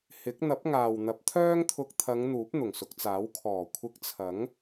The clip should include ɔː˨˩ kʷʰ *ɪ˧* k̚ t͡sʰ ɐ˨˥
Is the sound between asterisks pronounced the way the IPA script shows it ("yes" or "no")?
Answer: yes